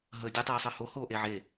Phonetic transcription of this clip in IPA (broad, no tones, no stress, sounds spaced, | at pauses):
ɦ əː dʲ ɯ tˤ iː sˤ əː h o h oː ʔ e ʕ e